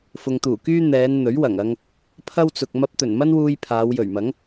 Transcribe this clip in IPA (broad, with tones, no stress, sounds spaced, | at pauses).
f ʊ˨ ŋ t̪ uː˨˩ k yː˥ n̪ ɛː˨˧ n n̪ ɵ˨˥ ɥ w ɐ˨˩ ŋ ɐ˧ ŋ | pʰ ɐ˥ w t͡s ʊ˨ k̚ m ɐ˧ p̚ t̪ ɵ˨˩ n m ɐ˥ n w uː˧ j pʰ aː˨˧ w j ɵ˨˩ ɥ m ɐ˨˥ ŋ